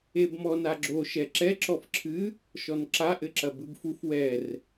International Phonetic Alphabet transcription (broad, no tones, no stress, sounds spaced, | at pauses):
e b m ɔ n a ɡ͡ǁ o ʃ ɛ ǁ ɛ ǁ ɔ f ǁʰ ɨ | ʃ ɔ n ǁ a ʔ ɘ ǁ ɐ b ɨ b f u f w ɛ r